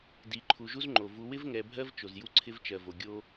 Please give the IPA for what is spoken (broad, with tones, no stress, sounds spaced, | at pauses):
d i˨ ǃʰ u˨ ʒ u˦ z ŋ͡ǃ o˨ v u˨ w ɪ˦ v ŋ ɛ˨ bʱ ɜ˦ v t͡ʃ o˨ z j u˦ ǀʰ ɪ˦ v t͡ʃ ɜ˨ v o˨ ɡʲ o˦